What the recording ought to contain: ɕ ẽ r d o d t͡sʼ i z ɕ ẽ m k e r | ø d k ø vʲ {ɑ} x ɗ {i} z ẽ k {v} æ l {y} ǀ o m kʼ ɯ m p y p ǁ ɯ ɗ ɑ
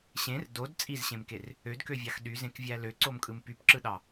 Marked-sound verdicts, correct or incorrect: correct, incorrect: y, incorrect: vʲ, incorrect: ø

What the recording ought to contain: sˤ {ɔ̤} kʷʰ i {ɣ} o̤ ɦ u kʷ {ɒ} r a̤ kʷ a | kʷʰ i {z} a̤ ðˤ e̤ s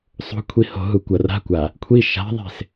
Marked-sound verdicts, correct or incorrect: incorrect: o̤, incorrect: h, incorrect: ʌ, incorrect: ʃ

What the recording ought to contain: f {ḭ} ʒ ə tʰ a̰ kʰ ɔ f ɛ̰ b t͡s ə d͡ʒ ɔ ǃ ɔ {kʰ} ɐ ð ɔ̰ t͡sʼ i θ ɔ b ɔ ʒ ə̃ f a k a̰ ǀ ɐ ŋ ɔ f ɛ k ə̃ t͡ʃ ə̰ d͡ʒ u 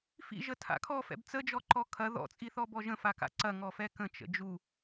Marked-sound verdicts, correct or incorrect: correct, correct

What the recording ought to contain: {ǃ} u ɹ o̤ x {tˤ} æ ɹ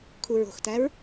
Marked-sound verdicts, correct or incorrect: incorrect: kʰ, incorrect: t

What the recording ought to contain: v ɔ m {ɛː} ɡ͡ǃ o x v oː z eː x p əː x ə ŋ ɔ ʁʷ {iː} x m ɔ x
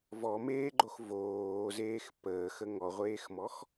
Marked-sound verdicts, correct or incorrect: incorrect: eː, incorrect: eː

